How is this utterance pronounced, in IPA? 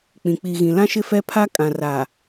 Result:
k͡pĩ˨k͡pi˨ ɣĩ˨lã˦ʃɪ˦fɛ˦ pʰa˦kʼã˨ra˨

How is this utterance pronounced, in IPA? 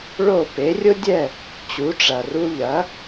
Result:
ɭo˥˩ pe˩˥rʲʊ˥dʲɛ˥˩ | t͡ɕu˩˥ʈ͡ʂɐ˩ru˧ ʎɐ˩˥

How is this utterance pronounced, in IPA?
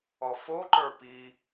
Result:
ɔfoǃə˞ pi

